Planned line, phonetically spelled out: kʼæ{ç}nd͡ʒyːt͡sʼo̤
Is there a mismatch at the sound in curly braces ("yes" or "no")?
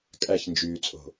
no